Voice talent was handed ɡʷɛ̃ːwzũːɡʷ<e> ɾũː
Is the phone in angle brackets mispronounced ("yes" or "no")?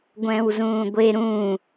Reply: no